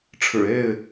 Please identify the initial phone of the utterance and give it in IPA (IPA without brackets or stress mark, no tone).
ʈ͡ʂʰ